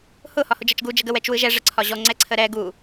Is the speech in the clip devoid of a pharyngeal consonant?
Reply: yes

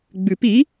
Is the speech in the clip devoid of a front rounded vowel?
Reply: yes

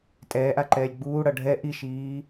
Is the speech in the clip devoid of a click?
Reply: no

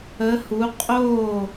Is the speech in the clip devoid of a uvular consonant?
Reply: no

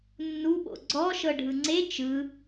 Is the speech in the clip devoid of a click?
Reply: no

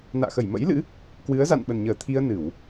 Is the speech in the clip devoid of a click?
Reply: yes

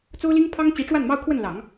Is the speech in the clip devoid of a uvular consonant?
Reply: yes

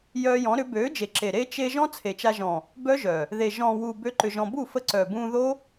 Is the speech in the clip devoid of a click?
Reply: no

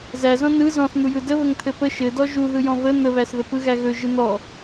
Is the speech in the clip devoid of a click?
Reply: yes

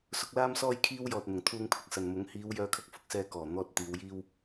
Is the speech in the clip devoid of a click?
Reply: yes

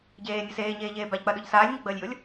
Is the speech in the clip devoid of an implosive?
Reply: no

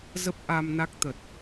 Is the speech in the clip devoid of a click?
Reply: yes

